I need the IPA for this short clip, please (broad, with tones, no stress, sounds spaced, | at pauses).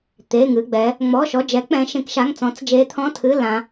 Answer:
t̪ e˩˧˩ ŋ ɨ˩˧˩ ɡ͡b ɛ˩˧ | ŋ͡m ɔ˩˧˩ ʃ ɔ˩˧˩ d͡ʒ ɛ˩˧ k͡p ɛ̃˩˧ ʃ ẽ˩˧ k ʃ a˩˧˩ ŋ t͡s ɔ̃˩˧ t͡s d͡ʒ e˩˧ t̪ʰ ɔ̃˩˧˩ tʰ ɨ˩˧˩ l ã˩˧